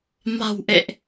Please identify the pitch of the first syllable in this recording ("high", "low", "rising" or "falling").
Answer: low